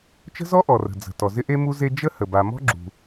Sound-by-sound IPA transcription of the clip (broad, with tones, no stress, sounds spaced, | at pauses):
t͡ʃ ə̤˥ z ɔ˥ ʔ ɔ˩ r ə̤˩ d͡z ə̤˩ t ɔ˩ z ɪ˥ ʔ e˥ m u˥ z e˥ d͡ʒ ə˥ h ə˩ b a˩ m ɔ̤˥ ɡ͡ǁ ṳ˩